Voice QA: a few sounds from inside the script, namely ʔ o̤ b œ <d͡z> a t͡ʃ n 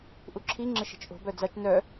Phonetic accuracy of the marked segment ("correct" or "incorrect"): correct